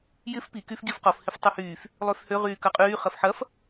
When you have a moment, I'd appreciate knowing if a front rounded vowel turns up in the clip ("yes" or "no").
yes